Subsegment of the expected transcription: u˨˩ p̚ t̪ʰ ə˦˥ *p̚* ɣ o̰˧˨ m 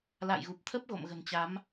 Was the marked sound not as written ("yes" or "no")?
no